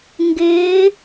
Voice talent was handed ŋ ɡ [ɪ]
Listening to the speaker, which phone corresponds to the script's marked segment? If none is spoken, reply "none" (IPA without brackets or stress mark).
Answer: ɪː